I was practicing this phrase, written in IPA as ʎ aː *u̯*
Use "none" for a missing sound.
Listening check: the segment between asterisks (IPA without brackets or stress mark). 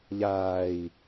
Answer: i̯